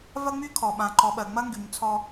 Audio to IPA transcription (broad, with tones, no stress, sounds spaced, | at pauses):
v ɐ˦ ŋ͡m y˦ kʰ ɔ˨ ɓ ã˨ ǃ ɔ˨ ɓ ɜ˨ ŋ͡m ɐ˦ ŋ ɡ y˨ ɲ t͡sʰ ɔ˦